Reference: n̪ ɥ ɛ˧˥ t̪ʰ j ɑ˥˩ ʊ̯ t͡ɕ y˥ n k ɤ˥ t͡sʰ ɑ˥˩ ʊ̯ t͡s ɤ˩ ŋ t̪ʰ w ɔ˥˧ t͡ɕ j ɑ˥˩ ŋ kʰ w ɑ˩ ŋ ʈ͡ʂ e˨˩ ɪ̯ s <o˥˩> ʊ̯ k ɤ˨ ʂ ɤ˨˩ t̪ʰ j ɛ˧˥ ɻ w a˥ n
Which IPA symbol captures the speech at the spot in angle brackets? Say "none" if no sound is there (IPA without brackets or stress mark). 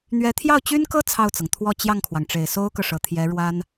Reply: o˥